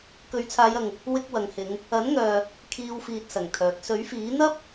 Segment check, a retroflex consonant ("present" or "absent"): absent